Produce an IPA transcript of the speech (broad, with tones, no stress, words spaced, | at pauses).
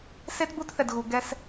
se˦tbu˦tθɛ˨dɣu˨ ɡɛ˦s